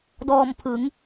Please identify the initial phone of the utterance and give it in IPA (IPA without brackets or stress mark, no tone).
d